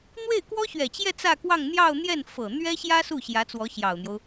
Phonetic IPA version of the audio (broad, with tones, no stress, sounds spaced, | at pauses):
n̪ w e˥˩ ɪ̯ k w ɔ˥ ɕ ɥ ɛ˨˩ t͡ɕ j ɛ˥˧ t͡s ä˥˧ k w ɑ˥˧ ŋ n̪ j ɑ˥˧ ʊ̯ n̪ j ɛ˥˩ n f ɤ˨˩ n̪ ɥ ɛ˥ ɕ j ä˥ s u˥˩ ɕ j ä˧˥ t͡s w ɔ˧˥ ɕ j ɑ˨˩ ʊ̯ n̪ j o˦ ʊ̯